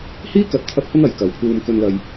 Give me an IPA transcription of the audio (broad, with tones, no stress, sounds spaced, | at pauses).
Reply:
h iː˥ k ɐ˨˥ t̚ t̪ʰ ɐ˧ p̚ h ʊ˥ ŋ ɐ˨˧ j k ɐ˨˧ w pʰ uː˧ m k ɵ˧ n l ɐ˧ j